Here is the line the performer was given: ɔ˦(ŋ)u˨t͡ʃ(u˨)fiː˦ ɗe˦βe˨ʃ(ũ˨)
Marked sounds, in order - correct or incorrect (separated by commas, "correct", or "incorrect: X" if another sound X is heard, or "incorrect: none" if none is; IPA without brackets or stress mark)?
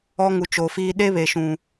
correct, incorrect: o˨, correct